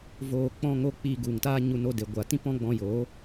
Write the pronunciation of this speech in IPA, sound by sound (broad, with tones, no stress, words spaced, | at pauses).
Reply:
voː˧ k͡pɔ̃˦ŋo˦ k͡piː˧ɡu˨ŋtaː˦ɲu˧ no˧de˨ɡʷa˨ tĩ˦pɔ̃˦ɡ͡bɔ̃˧joː˨˦